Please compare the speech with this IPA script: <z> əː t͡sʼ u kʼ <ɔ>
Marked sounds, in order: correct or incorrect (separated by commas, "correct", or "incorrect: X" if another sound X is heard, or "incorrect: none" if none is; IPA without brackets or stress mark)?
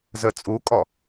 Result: correct, correct